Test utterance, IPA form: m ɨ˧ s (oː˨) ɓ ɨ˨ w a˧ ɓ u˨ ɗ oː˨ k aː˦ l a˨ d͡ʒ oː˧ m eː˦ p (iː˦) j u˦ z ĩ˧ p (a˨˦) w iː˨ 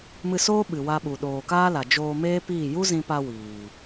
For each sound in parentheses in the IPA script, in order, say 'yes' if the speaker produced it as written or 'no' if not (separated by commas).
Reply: no, no, no